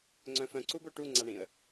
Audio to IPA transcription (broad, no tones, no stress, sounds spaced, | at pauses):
ŋ͡ǀ œ̃ f œ̃ ǀ u b o ʈ u ŋ͡ǀ a ɳ ĩ ə̯